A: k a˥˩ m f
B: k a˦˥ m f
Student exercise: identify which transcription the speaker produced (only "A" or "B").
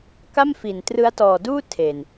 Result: A